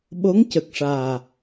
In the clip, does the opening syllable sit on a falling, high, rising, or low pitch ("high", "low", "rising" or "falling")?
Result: rising